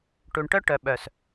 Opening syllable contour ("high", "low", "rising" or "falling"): low